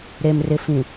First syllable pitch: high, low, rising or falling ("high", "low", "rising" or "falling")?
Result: low